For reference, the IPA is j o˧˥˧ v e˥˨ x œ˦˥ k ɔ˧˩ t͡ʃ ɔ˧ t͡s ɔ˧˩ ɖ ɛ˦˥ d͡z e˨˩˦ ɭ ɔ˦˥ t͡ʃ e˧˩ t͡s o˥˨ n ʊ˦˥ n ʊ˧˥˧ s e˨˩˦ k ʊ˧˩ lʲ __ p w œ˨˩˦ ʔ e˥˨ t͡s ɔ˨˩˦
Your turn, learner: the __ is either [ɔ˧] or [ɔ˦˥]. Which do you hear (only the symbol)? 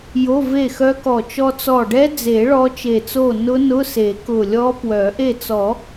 ɔ˦˥